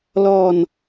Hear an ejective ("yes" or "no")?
no